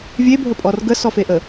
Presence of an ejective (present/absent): present